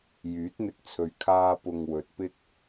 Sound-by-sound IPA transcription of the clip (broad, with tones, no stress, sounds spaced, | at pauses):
j yː˨˥ t̚ n̪ ɪ˧ k̚ t͡sʰ ɵ˨ ɥ kʰ aː˥ p ʊ˧ ŋ w ɵ˨ t̚ p ɪ˥ k̚